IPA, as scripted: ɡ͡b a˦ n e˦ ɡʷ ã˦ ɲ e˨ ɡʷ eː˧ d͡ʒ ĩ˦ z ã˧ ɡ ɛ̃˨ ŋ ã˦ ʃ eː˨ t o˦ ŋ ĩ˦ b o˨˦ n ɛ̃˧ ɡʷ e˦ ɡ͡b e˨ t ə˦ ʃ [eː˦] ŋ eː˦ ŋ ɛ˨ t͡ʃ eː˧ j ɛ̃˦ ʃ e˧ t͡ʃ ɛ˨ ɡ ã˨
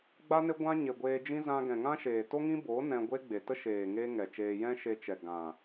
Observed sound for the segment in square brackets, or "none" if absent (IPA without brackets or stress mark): eː˨